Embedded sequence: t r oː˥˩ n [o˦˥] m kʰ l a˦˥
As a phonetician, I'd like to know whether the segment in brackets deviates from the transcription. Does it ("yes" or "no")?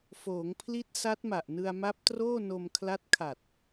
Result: yes